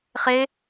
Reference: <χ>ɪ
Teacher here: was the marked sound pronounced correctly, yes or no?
yes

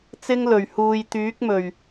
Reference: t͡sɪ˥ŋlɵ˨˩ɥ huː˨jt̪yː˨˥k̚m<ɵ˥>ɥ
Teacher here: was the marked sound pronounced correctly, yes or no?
no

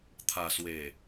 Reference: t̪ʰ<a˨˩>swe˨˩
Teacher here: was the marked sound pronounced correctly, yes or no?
yes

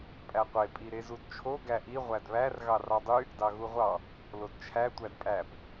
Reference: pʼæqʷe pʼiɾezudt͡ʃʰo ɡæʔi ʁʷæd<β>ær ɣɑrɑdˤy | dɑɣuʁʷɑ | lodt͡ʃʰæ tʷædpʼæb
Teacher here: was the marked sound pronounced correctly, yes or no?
yes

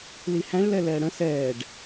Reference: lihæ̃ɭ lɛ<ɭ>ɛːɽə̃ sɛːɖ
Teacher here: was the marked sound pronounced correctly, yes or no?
no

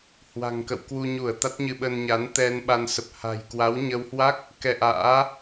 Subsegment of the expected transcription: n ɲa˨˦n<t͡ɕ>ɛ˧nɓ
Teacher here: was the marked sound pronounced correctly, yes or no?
no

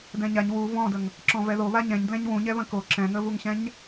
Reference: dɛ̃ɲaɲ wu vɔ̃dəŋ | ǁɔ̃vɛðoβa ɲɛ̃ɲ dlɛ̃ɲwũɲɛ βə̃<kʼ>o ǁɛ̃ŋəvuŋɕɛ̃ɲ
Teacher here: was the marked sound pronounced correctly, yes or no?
no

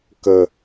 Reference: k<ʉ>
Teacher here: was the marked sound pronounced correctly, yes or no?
no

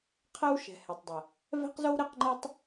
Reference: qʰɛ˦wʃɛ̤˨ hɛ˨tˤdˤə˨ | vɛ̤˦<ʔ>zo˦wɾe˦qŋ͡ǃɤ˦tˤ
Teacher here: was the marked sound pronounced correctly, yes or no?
no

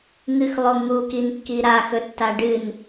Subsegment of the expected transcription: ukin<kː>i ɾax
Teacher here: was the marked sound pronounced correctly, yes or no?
yes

